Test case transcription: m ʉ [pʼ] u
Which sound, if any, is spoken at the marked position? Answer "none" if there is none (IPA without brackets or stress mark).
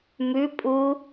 pʼ